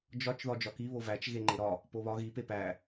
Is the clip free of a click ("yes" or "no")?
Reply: no